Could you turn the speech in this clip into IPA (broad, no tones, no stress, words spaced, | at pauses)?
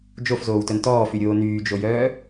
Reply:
d͡ʒofzoːwtœn tɔːfyɾʲoː nyːd͡ʒojœː